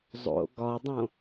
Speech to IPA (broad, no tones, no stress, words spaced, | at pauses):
zˤo̰ ɡɒdˤõ